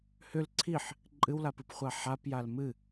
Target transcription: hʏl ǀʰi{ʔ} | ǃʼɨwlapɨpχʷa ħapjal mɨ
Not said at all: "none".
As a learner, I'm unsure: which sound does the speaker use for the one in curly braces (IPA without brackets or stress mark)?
ħ